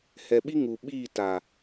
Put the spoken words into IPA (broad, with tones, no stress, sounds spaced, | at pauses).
h ɛ˨ ɓ i˦ ŋ u˨ ɓ iː˦˨ t a˨